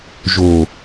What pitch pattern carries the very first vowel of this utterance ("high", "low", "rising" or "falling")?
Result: low